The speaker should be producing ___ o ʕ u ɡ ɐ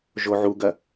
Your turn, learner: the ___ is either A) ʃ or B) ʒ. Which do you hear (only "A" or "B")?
B